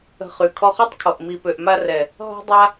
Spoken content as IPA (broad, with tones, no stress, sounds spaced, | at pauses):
ə̤˧ χ y˨ kʰ ɔ˧ χ ɔ˦ tˤ kʰ ɔ˨ ʔ m i˨ p ø˨ ʔ m a˧ r ɛ˨ | ɦ ɔ̤˦ dˤ a˦